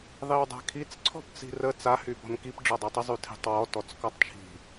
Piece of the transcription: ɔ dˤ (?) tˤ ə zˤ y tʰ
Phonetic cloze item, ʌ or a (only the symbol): a